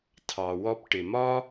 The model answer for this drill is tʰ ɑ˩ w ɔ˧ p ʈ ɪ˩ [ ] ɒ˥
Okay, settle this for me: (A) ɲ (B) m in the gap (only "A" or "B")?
B